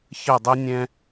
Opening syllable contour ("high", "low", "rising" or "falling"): falling